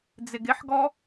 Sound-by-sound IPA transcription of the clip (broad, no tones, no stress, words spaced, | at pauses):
d͡zɪɡɪħɡɔ